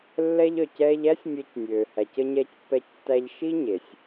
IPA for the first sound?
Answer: lː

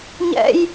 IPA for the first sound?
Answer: ɲ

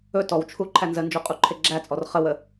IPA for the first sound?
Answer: ɵ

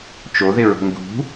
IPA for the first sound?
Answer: t͡ʃ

